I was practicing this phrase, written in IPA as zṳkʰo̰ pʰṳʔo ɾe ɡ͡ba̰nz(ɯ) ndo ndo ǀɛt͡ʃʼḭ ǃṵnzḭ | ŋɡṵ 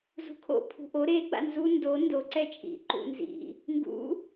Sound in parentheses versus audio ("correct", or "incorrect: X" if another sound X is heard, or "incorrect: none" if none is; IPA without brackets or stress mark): incorrect: u